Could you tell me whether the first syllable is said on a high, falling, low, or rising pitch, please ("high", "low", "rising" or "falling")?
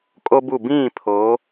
high